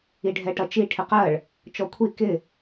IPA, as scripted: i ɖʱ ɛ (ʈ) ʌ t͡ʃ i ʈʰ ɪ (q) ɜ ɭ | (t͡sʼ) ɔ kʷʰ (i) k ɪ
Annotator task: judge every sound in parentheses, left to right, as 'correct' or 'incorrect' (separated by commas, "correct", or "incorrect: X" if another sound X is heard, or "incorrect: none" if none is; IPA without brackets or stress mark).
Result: correct, correct, incorrect: t͡ʃ, correct